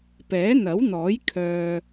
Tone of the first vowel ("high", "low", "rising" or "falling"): rising